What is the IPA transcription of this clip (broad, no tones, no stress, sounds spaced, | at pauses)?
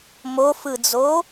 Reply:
m o f ɯ d͡z o